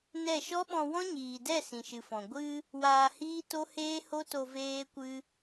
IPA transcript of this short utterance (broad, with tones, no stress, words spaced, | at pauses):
nɛ˦˨ ʃɔ˦ɓɔ̃˧ wɔ̃˦ɲiː˨dɛ˦˨ sĩ˨ʃɨ˨fɔ̃˨ ɡʷɨ˧ | waː˧hiː˦to˦ heː˦ho˦to˧ veː˦kʷɨ˦